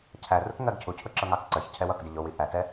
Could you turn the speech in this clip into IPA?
cʰ æ r ʊ k ŋ ɜ ɡ cʰ u cʰ ʊ ǁ ʌ ŋ ɑ k ǀ ɜ ç cʰ ɛ w ʌ k d ɪ ʎ ʊ w i ʔ æ t ɛ

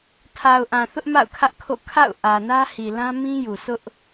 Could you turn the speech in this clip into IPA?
tʰ a˨ ʊ̯ ʔ ã˨ θ ʊ˦ ʔ m a̰˦˨ ʊ̯ kʰ ä˦ ʔ kʰ o̰˦˨ kʰ a̰˦˨ ʊ̯ ʔ ä˨ n ä˦ h i˨ l ã˦ m ĩ˦ j u˨ s ʊ˦ ʔ

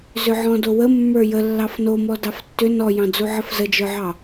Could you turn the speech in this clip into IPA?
z ʏ ʕ ɔ̃ d o w ə mː ə˞ j ə lː ɑ f n o m ɔ d ɑ f tː ʏ n ɔ j ɑ̃ d͡z u ʕ ə f z ə d͡ʒ ə˞ ʕ ɑ

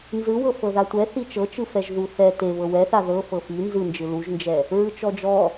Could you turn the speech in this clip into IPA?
n z ɯ w ɤ f ɤ ð a tʷ ɛ θ i t͡ʃ ɤ t͡ʃ ɯ f ɛ ʒ ð u θ ɛ t e β ɤ w ɛ θ a ð ɤ f ɤ f i n z ɯ n d͡ʒ ɯ l u ʒ n d͡ʒ ɛ | ɹ ɯ t͡ʃ ɔ d͡ʒ ɔ

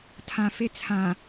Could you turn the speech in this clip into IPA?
tʰ ã f e t͡sʰ ã

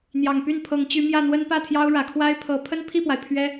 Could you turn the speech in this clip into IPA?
n̪ j ɑ˨˩ ŋ p y˥˩ n pʰ ɤ˧˥ ŋ t͡ɕ y˧˥ m j ä˥˩ n̪ w ə˥ n p ä˥˩ t̪ʰ j ɑ˥ ʊ̯ ɻ ä˨˩ kʰ w a˥ ɪ̯ pʰ ɤ˧˥ pʰ ə˥ n pʰ i˥˩ p w a˩ ɪ̯ pʰ ɥ ɛ˥

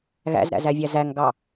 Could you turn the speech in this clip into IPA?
ɣ æ̰ z ɾ æ̰ z æ vʲ æ z æ ŋ ɡ ɑ

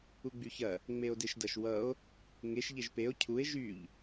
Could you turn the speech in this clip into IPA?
u ɡ͡b y ç ɐ | ŋ͡m e o̯ d e ʃ d ɐ ʃ w ʌ o̯ | ŋ e ʃ ʎ e ʒ p e o̯ cʰ u e̯ ʒ y ʎ

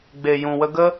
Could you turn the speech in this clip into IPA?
ɡ͡b e˨ j ũ˨ w ə˧ ɡ ə˦

